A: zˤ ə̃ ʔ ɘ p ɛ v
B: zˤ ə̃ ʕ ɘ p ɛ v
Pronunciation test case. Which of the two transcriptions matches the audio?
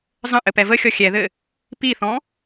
A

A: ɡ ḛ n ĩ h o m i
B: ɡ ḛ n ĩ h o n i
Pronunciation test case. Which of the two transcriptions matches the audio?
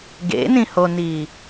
B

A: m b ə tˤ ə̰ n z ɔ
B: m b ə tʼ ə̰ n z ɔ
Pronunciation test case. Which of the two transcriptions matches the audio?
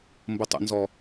A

